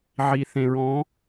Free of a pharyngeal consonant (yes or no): no